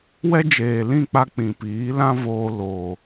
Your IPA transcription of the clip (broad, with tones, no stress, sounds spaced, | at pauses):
w ɛ˦ d͡ʒ eː˨ l ĩ˦˨ k͡p a˧ k͡p ĩ˨ p iː˨˦ l ã˦ v oː˧ l o˨